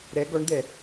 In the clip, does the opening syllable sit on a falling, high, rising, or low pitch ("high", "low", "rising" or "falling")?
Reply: rising